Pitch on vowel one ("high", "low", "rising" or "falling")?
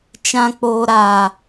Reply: high